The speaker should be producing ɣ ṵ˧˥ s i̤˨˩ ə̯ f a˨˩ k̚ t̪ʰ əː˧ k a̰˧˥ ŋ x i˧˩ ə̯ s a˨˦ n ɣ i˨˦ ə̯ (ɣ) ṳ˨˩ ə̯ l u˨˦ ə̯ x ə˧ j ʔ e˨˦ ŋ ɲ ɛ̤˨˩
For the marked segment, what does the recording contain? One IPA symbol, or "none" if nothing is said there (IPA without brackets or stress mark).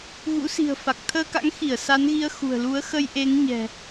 x